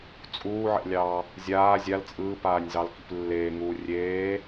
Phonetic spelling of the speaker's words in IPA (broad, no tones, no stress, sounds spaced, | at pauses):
t͡sʼ uː ʕ ɛ̰ lʲ ɑː | zʲ aː zʲ a l t͡sʼ ɯː p aː nʲ z ɑ l k ḭ p lː eː ŋ uː rʲ eː